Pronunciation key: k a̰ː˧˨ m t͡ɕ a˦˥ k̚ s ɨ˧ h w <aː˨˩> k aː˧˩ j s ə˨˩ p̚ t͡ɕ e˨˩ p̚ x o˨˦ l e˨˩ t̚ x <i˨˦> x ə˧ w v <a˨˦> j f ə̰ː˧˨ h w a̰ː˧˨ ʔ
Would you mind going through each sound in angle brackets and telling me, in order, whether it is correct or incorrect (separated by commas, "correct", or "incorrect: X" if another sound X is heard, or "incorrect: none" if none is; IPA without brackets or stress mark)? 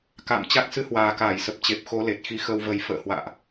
correct, correct, incorrect: ə˨˦